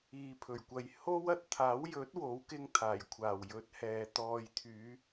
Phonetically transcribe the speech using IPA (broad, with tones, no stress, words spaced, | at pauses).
iː˨pʰɵ˨˩ɥkʷɐ˨j ho˥w ɐ˨t̚t̪ʰaː˨˥wjɵ˨˥t̚ wo˨˥wkɪ˧ŋ t̪ʰaː˨˩jkʷʰaː˨˩w jɵ˨˥t̚hɛː˨ t̪ɔː˨jt̪ʰyː˨˧